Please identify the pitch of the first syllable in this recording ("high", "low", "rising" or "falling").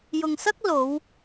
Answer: low